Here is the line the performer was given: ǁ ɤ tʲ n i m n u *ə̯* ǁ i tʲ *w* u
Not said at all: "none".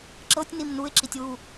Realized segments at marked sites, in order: ɪ̯, w

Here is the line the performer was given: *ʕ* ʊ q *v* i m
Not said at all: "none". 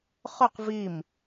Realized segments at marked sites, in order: χ, v

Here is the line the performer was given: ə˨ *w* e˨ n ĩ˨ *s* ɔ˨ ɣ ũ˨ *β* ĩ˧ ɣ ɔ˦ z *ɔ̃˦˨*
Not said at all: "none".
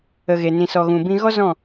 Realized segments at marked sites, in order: ɣ, s, b, ɔ̃˦˨

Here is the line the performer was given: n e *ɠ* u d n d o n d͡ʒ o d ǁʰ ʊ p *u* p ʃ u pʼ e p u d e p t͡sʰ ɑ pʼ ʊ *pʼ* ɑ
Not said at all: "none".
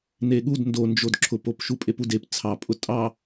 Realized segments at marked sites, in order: ɠ, o, tʼ

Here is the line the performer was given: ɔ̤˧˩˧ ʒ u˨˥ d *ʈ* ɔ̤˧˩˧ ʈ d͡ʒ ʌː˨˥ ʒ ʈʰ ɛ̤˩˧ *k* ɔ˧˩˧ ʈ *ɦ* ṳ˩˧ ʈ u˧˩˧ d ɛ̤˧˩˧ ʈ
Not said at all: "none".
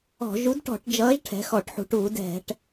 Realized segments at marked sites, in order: ʈ, x, ħ

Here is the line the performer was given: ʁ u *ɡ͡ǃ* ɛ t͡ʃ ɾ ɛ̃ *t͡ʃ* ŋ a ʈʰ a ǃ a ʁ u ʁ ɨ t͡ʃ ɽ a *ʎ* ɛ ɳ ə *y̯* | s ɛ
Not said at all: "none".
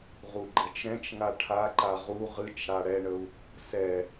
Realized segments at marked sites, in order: ɡ͡ǃ, t͡ʃ, ɽ, u̯

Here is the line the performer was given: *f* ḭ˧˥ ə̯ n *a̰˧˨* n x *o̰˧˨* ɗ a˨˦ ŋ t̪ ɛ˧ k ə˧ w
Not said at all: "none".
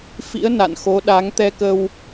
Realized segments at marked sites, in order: f, a̰˧˨, o˨˦

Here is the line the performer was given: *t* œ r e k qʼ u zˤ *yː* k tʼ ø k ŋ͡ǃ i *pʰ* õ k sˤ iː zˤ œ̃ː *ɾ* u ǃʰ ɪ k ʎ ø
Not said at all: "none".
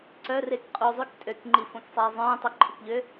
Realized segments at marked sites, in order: ǀ, y, f, tˤ

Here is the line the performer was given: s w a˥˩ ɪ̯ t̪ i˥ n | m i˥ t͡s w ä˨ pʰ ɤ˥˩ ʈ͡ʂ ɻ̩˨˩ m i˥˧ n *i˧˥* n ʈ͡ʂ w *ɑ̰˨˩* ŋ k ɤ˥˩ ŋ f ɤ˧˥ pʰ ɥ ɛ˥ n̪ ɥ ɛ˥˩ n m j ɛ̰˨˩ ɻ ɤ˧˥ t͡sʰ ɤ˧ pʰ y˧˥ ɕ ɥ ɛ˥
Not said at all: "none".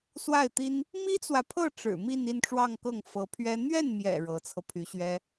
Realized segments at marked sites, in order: i˥˧, ɑ˥˧

